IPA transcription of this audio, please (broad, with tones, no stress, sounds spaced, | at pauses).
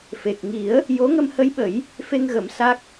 f e˨˩ k̚ ŋ i˨˩˦ ə̯ | j o˧˥ ŋ ə˧ m h ə˧˥ j ɓ ə˨˩˦ j | f e˧ ŋ ɣ ə˨˩˦ m s a˦˥ k̚